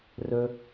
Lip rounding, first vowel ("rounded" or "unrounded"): rounded